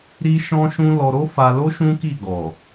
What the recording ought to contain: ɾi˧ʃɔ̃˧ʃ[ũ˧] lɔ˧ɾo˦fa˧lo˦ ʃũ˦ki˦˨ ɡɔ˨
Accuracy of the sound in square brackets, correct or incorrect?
correct